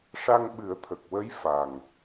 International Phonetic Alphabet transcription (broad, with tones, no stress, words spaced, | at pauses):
ʂa˧ŋɓɨ˨˩˦ə̯t̪ʰə˨˩k̚wə˧˥j fa˨˩ŋ